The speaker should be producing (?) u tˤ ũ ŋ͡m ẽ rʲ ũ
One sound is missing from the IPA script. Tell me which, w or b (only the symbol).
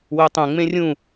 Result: w